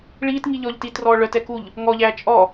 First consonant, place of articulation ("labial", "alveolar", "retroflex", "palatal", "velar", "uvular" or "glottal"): retroflex